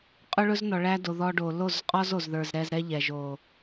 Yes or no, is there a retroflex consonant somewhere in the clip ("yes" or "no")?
yes